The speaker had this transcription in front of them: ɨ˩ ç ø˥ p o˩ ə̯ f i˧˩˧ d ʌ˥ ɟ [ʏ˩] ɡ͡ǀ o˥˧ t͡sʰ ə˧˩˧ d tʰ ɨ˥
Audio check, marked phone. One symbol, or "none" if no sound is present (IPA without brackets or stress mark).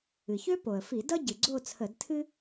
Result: ɨ˩